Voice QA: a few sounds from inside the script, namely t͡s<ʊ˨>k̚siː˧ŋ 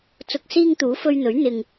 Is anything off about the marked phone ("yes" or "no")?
no